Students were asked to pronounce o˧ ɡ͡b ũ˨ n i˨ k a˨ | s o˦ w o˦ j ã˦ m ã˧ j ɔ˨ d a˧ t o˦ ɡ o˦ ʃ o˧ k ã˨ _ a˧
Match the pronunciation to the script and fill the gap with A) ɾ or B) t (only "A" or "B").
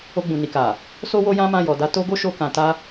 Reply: B